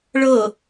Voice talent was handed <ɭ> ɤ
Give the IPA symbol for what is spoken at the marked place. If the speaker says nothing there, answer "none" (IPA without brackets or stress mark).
ɭ